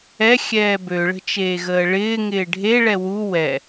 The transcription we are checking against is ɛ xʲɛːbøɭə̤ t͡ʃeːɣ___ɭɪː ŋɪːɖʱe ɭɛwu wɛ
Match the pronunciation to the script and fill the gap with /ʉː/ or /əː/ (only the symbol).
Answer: əː